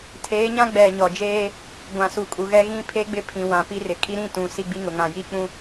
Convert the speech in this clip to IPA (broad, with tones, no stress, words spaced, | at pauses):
tʰeː˨˦ɲã˦ ɡ͡bɛ˨ ɲɔ˨d͡ʒeː˦ | ɡʷã˨su˨kʼu˨ɣɛ˦ ɣĩ˦pʰe˦ɡ͡bɪ˦pʰĩ˨ wã˨ pi˦rɪ˨ kʼi˦ɾĩ˦˨ tũ˨ si˦ ɡ͡bi˦ŋʊ˨ŋã˨ ji˦k͡pũ˦